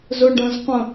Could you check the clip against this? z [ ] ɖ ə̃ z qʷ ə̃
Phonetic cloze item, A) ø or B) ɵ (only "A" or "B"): B